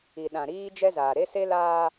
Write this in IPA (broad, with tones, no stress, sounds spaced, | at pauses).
i˨ ɗ ã˨ ɾ iː˦ d͡ʒ ɛ˦ z aː˨ ɾ e˦ s e˦ l aː˦